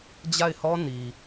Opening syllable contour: falling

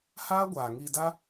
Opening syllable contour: high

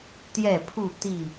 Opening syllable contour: falling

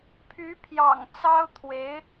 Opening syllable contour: rising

